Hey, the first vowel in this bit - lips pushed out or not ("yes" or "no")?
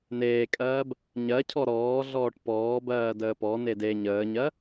no